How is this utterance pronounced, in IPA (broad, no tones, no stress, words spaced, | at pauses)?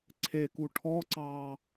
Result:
ǀʰeku ʈʰɔǀɑː